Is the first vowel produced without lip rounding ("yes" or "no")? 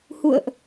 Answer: no